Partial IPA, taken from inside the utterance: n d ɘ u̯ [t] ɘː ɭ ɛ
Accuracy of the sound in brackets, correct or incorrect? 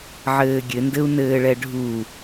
incorrect